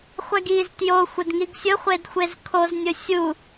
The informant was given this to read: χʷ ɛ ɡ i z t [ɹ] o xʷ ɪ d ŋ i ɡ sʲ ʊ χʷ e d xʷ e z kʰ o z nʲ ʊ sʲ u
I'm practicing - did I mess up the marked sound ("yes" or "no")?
yes